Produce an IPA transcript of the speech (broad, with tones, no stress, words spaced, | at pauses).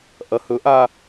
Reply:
ʔɐ˧˥hɵ˧˥ʔa˥